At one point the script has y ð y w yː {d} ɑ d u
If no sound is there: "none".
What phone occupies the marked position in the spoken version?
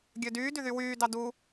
d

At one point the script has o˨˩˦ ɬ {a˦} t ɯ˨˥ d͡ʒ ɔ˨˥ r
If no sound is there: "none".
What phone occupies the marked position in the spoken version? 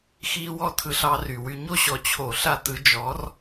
a˦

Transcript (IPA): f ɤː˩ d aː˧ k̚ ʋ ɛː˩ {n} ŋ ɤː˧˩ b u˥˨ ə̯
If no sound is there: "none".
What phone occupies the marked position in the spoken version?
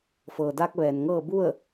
n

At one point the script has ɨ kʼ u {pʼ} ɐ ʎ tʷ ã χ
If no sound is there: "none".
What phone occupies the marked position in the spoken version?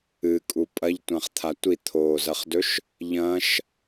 pʼ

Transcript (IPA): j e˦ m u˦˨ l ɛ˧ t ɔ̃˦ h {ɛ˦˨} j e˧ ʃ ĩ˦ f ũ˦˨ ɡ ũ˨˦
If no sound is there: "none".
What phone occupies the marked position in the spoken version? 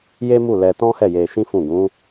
ɛ˦˨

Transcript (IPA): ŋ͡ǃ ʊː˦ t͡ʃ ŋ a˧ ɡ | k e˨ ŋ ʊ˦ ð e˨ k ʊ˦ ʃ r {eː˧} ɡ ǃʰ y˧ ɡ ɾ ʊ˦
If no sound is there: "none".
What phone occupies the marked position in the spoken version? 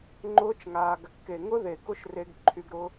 e˧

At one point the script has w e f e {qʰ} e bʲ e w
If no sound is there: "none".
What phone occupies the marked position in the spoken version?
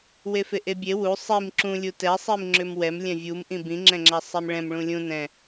ʔ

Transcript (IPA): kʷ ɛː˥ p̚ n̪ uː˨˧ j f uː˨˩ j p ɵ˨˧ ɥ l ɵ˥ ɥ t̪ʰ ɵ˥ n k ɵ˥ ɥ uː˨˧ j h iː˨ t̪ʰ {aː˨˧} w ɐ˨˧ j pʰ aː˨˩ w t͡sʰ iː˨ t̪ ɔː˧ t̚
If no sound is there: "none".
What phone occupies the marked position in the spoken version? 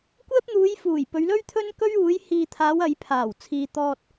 aː˨˧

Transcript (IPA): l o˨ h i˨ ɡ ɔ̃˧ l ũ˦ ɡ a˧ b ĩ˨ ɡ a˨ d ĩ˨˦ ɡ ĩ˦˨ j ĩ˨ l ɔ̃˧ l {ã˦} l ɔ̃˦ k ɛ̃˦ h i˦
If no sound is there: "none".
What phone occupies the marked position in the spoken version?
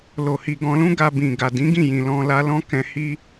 a˦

